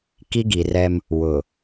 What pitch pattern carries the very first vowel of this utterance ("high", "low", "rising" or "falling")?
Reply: high